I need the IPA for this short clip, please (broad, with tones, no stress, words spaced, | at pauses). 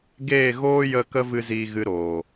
ɡeː˦˨ɣoː˦jə˧ kə˦vɨ˧ ziː˧ɣɨ˧ɾoː˨